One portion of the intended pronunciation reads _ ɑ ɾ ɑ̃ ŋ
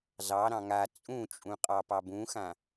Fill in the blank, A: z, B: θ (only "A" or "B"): A